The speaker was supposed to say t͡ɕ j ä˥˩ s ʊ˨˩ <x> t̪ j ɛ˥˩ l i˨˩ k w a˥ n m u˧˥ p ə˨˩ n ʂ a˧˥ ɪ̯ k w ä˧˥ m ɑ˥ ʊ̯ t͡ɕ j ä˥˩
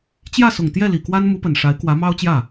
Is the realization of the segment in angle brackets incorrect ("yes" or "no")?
yes